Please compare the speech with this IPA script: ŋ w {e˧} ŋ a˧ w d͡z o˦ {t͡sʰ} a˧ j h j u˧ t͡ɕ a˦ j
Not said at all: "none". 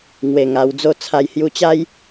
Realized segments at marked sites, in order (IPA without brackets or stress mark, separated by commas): e˧, t͡sʰ